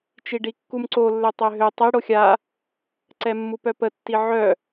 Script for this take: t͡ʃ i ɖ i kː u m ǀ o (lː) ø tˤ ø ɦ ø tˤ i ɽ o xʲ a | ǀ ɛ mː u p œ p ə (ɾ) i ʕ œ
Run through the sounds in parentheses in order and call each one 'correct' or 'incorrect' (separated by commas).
correct, incorrect